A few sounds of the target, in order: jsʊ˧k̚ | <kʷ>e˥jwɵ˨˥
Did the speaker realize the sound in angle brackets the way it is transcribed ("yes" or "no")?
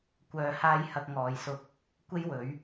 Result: yes